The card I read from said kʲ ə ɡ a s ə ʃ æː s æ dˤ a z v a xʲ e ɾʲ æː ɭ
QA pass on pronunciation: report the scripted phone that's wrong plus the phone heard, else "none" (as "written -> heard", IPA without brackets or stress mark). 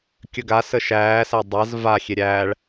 none